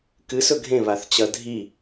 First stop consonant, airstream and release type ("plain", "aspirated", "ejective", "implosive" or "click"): plain